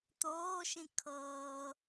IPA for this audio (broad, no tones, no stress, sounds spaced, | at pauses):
t̪ oː ʃ ĩ kʰ ɤː